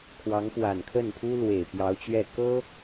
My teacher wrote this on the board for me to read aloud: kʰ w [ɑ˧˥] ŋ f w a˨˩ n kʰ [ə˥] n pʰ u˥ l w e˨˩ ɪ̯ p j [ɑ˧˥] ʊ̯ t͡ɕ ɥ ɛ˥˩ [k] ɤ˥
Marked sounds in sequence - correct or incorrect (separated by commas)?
correct, incorrect, correct, correct